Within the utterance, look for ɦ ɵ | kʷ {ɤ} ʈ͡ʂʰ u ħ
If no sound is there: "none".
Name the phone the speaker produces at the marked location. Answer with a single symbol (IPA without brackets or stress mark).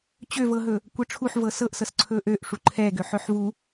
ɤ